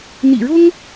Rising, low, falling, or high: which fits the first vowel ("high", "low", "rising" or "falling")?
low